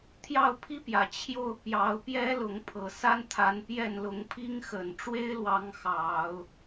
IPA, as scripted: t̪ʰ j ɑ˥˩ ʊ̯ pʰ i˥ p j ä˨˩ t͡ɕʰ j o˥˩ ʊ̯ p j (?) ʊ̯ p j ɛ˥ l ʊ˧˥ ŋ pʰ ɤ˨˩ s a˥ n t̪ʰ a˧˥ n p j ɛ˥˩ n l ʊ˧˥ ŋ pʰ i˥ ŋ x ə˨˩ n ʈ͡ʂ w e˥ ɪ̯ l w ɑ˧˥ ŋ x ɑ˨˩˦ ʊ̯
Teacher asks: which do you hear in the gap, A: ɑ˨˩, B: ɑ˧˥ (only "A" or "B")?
B